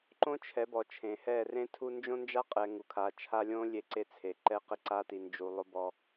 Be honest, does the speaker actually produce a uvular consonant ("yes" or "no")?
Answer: yes